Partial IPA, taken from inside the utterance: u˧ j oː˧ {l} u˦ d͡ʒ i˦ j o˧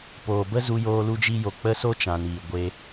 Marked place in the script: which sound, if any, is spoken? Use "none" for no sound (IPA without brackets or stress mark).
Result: l